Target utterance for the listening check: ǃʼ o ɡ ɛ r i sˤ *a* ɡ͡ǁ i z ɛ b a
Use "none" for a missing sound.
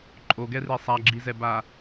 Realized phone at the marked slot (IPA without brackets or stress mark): a